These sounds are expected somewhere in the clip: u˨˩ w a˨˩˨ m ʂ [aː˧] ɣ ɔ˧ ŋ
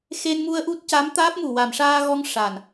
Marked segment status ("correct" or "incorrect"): correct